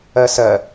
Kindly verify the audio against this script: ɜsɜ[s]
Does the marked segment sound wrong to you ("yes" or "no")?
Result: yes